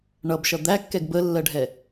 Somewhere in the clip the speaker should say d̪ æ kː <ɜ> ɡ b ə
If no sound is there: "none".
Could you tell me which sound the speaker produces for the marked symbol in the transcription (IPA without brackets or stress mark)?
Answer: ɛ